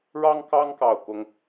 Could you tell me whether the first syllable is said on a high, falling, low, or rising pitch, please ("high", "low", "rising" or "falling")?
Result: high